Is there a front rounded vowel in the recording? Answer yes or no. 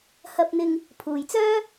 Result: yes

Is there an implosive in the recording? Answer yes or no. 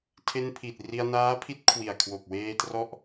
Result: no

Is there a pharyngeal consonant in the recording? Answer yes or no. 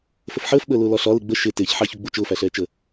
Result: yes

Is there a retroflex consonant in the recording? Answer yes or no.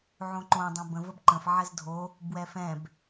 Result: no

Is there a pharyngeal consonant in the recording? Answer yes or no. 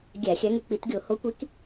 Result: no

